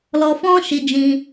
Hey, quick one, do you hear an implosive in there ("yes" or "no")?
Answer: no